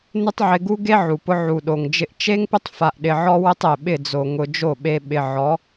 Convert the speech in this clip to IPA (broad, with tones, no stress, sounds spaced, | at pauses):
n ɪ˦ tˤ ʕ ɪ˧ ɡ u˦ ɡ e˦ ʕ u˨ p ʊ˧ ʕ u˨ ɗ o˨ ŋ d͡ʒ ɪ˧ ʔ t͡ʃ e˦ ŋ p ɪ˦ tˤ f a˧ ʔ ɗ ɪ˧ ʕ ɔ˦ w ɪ˦ tˤ e˨ ɓ ɪ˦˨ d͡z o˨ ŋ ʊ˧ d͡ʒ o˦˨ ɓ e˧ ɓ ɪ˨ ʕ ɔ˨˦